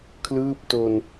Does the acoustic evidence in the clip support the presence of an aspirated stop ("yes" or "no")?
yes